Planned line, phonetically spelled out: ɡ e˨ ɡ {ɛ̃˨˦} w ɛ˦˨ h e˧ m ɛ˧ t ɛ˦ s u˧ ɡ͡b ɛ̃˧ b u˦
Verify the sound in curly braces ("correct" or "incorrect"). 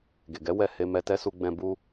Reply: incorrect